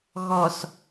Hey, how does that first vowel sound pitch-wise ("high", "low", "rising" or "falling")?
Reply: low